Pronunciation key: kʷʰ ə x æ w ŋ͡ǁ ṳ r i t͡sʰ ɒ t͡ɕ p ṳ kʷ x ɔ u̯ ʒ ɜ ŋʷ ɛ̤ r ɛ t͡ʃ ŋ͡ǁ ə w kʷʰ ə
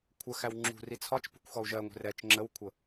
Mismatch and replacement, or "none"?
t͡ɕ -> t͡ʃ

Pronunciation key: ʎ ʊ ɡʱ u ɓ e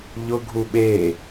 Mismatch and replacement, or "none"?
none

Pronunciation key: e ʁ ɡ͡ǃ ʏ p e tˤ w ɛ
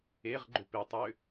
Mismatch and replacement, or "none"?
ɛ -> ʏ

